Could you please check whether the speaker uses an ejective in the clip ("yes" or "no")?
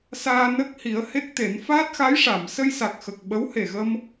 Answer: no